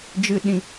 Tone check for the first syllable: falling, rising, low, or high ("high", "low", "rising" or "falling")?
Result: high